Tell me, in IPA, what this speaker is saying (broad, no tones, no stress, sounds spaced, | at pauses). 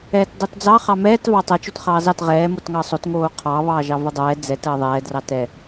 ɛː t dˤ o t d͡z ɑ χ ɑ m ɛː t v ɑ tˤ ɛ t͡ʃ o t χ ɑː z ɑ t ʁ ɛː m o t ŋ ɑ sˤ o t ŋ oː qʰ ɑ β ɑː ʒ ɑ v ə dˤ ɛː d͡z ɛ t əː ðˤ ɛː d r ɑ t ɛ